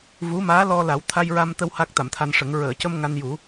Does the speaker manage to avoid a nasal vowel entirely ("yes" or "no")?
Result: yes